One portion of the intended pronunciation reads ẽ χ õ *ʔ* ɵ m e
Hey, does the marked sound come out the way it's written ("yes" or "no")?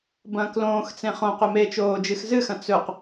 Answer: no